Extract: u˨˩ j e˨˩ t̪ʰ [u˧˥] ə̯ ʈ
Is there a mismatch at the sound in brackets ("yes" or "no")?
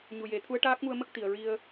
no